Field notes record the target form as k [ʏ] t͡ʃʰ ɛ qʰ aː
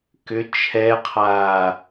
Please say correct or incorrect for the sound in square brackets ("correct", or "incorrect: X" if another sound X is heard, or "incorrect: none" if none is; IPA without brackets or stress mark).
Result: correct